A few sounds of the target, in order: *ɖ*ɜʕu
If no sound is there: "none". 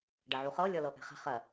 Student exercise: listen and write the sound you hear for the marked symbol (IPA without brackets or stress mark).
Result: ɖ